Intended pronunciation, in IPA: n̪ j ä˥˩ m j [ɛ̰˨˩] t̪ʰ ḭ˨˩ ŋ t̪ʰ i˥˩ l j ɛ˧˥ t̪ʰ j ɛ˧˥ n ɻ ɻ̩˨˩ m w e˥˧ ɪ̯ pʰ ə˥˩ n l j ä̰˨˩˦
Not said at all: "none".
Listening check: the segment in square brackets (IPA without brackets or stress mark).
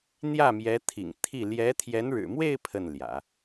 ɛ˧˥